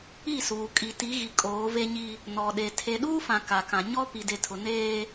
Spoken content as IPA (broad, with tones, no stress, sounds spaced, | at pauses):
i˦˨ s uː˨ kʼ i˨ t i˨˦ ɣ i˨ kʼ oː˨˦ v e˦ ɲ i˦ | n ɔ˨ ɗ e˨ tʰ e˨ ɗ uː˦ f ã˨ k a˨ k ã˨ ɲ ɔ˦ p i˨ d e˨ tʰ ʊ˨ n eː˦